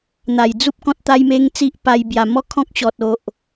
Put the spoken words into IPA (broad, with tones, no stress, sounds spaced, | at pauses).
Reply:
n̪ a˨˩ j d͡z u˦ p̚ k ɔ̃˦ t̚ t̪ a˦ j m e˦ ŋ t͡s i˦ ʔ p a˧ j b j a˨˩ m ɔ˥˧ kʰ ɔ̃˦ k̚ ɕ ɔ˨ t̚ o˨ ʔ